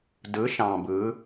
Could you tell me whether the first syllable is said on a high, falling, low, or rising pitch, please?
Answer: rising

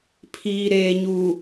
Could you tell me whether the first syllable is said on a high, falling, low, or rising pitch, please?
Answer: low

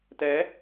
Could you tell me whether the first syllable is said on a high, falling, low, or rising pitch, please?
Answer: rising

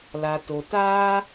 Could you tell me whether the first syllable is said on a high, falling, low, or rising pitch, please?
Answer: low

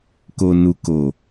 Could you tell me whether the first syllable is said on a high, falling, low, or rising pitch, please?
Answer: low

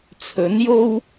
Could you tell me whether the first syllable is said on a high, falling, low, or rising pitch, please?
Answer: rising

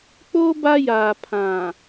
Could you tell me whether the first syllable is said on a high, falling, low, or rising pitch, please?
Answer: high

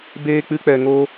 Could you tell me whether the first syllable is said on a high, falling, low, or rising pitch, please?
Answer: high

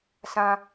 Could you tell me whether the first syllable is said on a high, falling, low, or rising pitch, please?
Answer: high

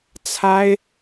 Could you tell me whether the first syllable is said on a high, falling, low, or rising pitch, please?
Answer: high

